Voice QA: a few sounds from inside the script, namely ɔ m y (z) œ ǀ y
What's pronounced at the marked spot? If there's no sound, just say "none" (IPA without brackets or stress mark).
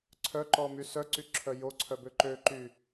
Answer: s